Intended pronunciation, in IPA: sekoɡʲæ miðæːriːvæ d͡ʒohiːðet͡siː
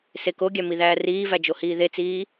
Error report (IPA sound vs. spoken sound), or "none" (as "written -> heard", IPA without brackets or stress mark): none